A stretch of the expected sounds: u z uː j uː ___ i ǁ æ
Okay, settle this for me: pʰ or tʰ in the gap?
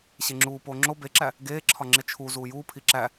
pʰ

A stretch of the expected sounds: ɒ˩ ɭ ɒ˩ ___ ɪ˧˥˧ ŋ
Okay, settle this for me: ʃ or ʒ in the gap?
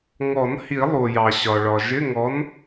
ʒ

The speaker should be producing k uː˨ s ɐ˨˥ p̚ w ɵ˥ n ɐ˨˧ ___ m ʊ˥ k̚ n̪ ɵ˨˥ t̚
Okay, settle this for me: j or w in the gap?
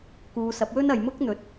j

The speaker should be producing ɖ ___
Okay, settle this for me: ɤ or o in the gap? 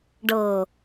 ɤ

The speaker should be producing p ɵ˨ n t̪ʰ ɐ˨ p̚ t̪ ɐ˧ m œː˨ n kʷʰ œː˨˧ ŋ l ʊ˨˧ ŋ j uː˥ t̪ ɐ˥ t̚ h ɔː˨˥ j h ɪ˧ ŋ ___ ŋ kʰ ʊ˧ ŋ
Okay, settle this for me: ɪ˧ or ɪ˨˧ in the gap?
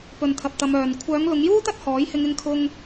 ɪ˧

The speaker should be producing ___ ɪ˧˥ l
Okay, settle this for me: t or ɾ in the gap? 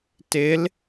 t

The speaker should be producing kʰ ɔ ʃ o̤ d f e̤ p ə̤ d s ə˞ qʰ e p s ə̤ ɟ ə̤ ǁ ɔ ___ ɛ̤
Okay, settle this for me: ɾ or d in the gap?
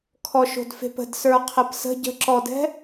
d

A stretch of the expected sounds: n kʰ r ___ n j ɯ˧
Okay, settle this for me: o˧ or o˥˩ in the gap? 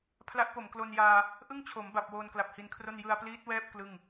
o˥˩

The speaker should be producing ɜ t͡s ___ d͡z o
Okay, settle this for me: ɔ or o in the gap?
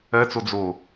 o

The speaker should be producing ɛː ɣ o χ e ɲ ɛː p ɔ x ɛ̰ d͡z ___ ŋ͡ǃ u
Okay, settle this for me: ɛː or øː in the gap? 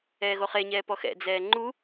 ɛː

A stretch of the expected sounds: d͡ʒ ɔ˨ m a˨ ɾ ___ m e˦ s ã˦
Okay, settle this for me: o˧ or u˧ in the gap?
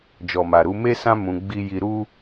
u˧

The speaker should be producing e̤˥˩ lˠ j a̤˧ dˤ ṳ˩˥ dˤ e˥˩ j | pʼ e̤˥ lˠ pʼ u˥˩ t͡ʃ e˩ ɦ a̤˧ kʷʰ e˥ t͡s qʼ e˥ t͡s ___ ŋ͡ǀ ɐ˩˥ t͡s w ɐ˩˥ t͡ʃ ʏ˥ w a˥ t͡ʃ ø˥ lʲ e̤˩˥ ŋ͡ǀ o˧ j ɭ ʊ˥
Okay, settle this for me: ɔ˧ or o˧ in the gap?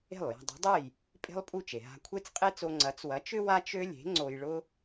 o˧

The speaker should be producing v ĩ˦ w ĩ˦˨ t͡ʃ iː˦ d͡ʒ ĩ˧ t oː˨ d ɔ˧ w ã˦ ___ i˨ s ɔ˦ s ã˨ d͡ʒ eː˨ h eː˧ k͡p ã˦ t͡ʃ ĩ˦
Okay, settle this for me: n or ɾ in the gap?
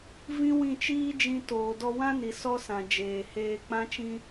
n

